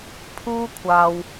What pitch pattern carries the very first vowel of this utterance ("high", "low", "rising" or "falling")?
high